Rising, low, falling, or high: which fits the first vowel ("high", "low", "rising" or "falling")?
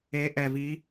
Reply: rising